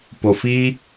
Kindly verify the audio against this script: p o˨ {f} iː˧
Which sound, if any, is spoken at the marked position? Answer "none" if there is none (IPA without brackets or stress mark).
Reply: f